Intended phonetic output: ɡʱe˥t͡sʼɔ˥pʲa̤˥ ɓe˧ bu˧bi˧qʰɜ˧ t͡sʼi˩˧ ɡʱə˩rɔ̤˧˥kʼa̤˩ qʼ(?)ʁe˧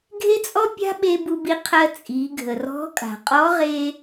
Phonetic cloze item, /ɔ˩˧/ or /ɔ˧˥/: ɔ˧˥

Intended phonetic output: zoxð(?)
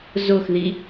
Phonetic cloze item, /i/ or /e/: i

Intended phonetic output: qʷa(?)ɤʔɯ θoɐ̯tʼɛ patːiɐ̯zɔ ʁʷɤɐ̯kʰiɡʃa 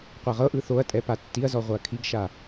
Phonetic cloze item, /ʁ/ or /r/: ʁ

